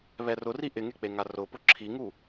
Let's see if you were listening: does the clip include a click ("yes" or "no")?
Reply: yes